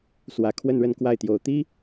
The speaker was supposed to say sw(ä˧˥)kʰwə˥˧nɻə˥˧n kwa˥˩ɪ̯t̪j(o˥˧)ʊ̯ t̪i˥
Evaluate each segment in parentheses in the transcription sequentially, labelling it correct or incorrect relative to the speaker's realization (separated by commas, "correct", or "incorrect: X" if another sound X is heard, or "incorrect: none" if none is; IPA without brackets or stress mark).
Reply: incorrect: ä˨˩, incorrect: o˨˩